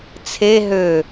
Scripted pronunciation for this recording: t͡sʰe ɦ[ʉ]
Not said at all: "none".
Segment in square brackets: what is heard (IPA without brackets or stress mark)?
ø